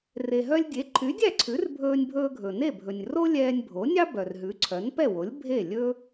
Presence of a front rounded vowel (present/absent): present